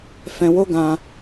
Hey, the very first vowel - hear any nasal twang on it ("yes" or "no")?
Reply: yes